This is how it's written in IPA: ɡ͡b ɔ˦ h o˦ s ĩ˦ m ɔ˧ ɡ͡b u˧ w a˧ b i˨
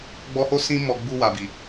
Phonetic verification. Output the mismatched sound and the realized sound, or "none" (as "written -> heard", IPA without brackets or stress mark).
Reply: a˧ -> a˨